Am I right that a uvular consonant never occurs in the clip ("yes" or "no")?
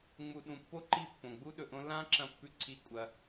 yes